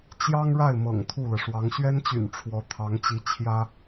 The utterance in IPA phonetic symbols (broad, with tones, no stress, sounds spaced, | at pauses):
t͡ɕ j ɑ˥ ŋ ɻ a˥˩ ɪ̯ m ɤ̰˨˩ ŋ t̪ʰ u˥˩ l ɤ˩ ʂ w ɑ˧˥ ŋ ɕ ɥ ɛ˥ n t͡ɕ y̰˨˩ n ʈ͡ʂʰ w ɔ˧˥ t̪ʰ ɑ˧˥ ŋ t͡ɕ i˧˥ t͡ɕʰ j ä˥